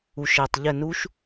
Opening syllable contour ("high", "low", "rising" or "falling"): low